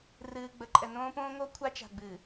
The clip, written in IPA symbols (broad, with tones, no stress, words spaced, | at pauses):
rɨː˨ɡ͡bə˨˦ǃʼɛ˨ nõː˦põː˦ŋo˦ kʷʰa˦t͡ʃa̤˨ɡ͡bɨ˨